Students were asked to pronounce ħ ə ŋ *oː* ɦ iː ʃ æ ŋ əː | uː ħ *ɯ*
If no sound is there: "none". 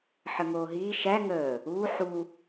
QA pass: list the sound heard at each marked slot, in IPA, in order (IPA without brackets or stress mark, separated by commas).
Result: oː, u